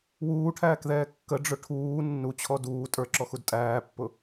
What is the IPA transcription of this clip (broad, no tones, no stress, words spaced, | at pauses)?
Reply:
wuːʈʰæːkðɛː kːəɖ͡ʐʊ ʈʰuː nːut͡ɕʰɔ duː tʼə˞ǁɔxud tʼæːpːʊ